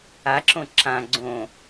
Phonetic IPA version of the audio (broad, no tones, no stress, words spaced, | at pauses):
aǁõ ǁã ɡ͡ǀõ